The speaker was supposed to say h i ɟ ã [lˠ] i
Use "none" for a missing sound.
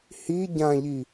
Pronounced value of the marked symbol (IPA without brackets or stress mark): ʎ